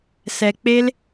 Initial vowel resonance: oral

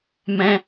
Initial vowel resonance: nasal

